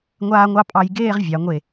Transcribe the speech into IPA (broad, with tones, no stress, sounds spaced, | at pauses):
ŋʷ aː˧ ŋʷ ɑ˧ pʼ ɑ˧ j ɡ eː˥˧ ʁ vʲ ɑ˩˧ ŋʷ e˧˩